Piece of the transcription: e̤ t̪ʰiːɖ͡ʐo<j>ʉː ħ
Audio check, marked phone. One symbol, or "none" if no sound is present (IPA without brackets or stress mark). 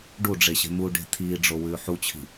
w